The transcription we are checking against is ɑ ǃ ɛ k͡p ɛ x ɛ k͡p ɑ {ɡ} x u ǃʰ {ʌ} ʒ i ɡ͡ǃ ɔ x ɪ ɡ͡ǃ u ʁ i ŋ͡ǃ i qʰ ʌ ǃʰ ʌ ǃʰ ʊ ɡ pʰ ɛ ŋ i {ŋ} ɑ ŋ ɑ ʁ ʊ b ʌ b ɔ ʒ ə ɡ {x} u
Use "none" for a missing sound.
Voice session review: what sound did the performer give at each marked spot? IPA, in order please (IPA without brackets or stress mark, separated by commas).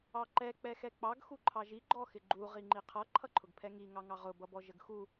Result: ɡ, ɑ, ŋ, x